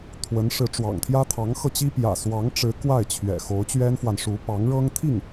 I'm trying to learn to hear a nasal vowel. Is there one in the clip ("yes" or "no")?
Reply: no